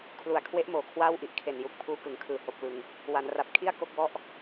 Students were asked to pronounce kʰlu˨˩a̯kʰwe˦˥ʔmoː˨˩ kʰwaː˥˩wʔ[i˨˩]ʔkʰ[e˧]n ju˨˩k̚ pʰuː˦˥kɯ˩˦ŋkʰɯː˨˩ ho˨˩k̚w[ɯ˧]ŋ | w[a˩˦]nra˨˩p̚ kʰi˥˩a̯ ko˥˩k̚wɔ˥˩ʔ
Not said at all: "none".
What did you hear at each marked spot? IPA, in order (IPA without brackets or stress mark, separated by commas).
i˦˥, e˨˩, ɯ˨˩, a˩˦